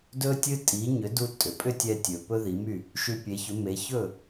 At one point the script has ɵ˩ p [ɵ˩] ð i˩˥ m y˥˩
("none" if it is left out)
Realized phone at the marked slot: ɵ˥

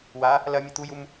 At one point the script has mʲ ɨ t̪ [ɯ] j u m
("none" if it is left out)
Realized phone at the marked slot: u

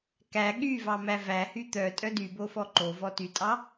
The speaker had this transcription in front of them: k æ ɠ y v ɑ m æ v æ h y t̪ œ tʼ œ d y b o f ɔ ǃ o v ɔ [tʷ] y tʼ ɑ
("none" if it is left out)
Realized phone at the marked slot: t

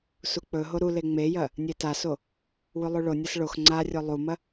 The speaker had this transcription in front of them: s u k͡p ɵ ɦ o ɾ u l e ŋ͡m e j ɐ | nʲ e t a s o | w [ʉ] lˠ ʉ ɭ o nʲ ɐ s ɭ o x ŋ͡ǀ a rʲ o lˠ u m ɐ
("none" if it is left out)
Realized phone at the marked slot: ʉ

